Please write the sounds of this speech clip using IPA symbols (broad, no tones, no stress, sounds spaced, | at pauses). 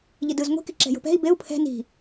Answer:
ʎ i d ɯ z ŋʷ i̤ k i ǁ ɛ̤ j o̤ p ɛ̤ i̯ b e u̯ pʰ ɛ̤ n i̤